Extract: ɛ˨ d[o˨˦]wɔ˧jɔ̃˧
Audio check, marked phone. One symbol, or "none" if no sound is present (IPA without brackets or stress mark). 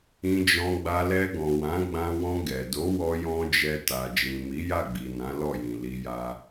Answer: o˨˦